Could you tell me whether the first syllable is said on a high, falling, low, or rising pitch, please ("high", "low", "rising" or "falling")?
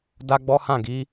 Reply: high